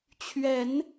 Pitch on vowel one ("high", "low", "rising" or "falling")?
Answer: rising